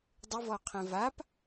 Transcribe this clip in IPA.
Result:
dˤ ɪ v ɔ qʰ ɛ̃ v a p

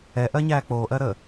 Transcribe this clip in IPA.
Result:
ɛ ʔ ɜ ɲ æː k͡p oː ʔ ɜ ɾ əː

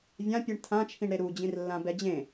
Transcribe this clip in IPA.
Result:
vʲ ã pʲ ɯ ɳ tʰ ã t͡ʃʰ ĩ ɳ ɾ e ɾ u d͡ʑ ĩ r lː ã b ɛ d͡ʑ ẽ

